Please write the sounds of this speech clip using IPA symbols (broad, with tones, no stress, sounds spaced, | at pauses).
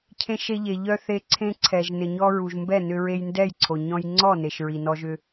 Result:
cʰ ẽ˧ ʃ e˧ ʎ e˩ ʎ œ˧ θ e˧ ǀʰ ẽ˧ ǀʰ ɛ˩ ʒ n ɪ˩ ɲ ɔ˧ ɹ u˩ ʒ m b ɛ˥˩ n ʏ˧ ɹ e˧ j n d ɛ˥˩ j ǀʰ o˩ ɲ ɔ̃˧ j ŋ͡ǀ ɔ˥˩ n e˩ ʃ ɹ i˩ n ɔ˧ ʒ ʏ˧